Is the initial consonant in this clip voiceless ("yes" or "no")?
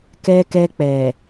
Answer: yes